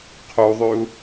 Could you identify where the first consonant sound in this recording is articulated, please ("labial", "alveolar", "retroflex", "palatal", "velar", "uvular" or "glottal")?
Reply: uvular